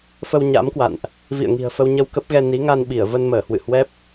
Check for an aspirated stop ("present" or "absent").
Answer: absent